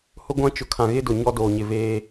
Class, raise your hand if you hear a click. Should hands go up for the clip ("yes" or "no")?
no